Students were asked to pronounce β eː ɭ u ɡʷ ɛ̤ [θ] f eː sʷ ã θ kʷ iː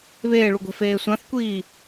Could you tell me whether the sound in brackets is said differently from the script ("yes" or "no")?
yes